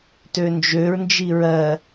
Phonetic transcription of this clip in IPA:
tønd͡ʒøɹnd͡ʒi ɹɜ

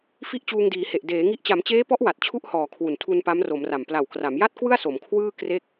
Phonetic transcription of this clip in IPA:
fi˥˩ʔt͡ɕuː˧ŋdiː˩˦he˨˩ʔ deː˩˦ŋi˦˥ʔ t͡ɕa˩˦mt͡ɕeː˦˥pɔ˦˥ʔ wa˨˩t̚t͡ɕʰu˥˩ʔhɔː˨˩ kʰwu˨˩ntʰu˧n pa˦˥mro˩˦mra˨˩m pla˨˩wkra˩˦mja˥˩t̚kwɯ˥˩a̯ so˩˦mkʰwɯː˥˩ kre˥˩k̚

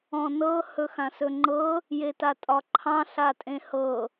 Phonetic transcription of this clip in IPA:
ɔ̃nɤ hɵxãsɵŋ͡ǃɤ | jetatʼɒǃʰɑ̃ ɬatʼẽhɤ

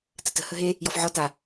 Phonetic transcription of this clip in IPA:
tətə̤ həɦe | jɔfʕɔ ta

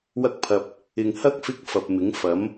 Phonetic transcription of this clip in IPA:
wɐ˥k̚pʰɐ˧p̚ | ɪ˨ŋhɐ˥k̚ fɪ˥k̚fɐ˨p̚mɪ˨˥ŋ fɐ˨˥m

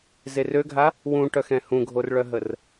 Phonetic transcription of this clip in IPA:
zerøɡʱa | wũʈœxɛ̃ hũɡʱorɭœɦər

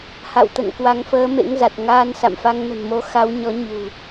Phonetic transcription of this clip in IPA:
ha̰˧˨wt̪ə̰˧˨n kwa˨˦ŋfəː˨˦mḛ˧˥ŋza˨˩t̚ ŋaː˧nsa̰˧˨mfa˧ŋ nə̤˨˩nmo˨˦xa˨˦wɲɔ˨˦ ɲṳ˨˩

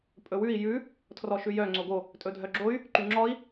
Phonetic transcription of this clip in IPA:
pʼɵwʉi̯ jʉ | tʰrɔʃʉjœ ŋ͡ǀoɡo | tʼɵdʱœɡ͡ǁoy̯ | ǃyŋ͡ǁɔi̯

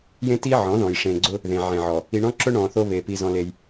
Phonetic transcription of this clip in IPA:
jẽ˦ti˦ ʕɔ̃˨˦ðɔ̃˨j ʂẽ˨ɡ͡ǀʊ˦ | ðẽ˨ʕẽ˨ʕɔ˨ | i˨ɳɔ̃˦ǁʊ˦ ɳɔ̃˨θo˦βe˨ pi˦zɔ̃˦le˦j

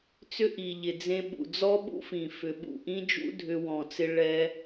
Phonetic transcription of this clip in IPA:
t͡sʏ˦ʔi˨ʎɪ˨ d͡zẽ˧ɓṵ˨d͡zɔ˦ ɓṵ˦fĩ˨ fʏ˨ɓṵ˦˨ʔĩ˦d͡ʒṵ˦ dʱʏ˧ wɔ̃˨t͡sɪ˧ ɭɛ˦

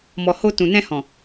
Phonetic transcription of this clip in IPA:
mɔ˨ ho˧ tũ˨nɛ̃˧hɔ̃˨

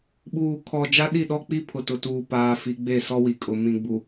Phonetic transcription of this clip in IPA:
ɓuː˨kʰɔ˨ d͡ʒa˦ɗi˦˨ɗɔ˦k͡pi˦ pʰʊ˨tʊ˨tuː˨ paː˦fi˦ ɡ͡be˦˨sɔ˦wi˨kʼʊ˨ mĩ˨ɡ͡bu˨

